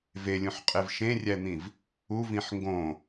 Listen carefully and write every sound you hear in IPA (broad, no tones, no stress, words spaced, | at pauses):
velʲũħqʼev ʃẽrʲæn̪ĩv | uvĩħ ŋɡõ